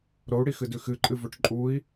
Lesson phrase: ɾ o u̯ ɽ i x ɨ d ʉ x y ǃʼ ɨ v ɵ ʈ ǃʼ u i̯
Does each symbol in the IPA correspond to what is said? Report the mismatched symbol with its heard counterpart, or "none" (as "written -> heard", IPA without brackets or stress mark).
y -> ɨ